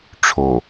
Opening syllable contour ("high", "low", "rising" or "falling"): low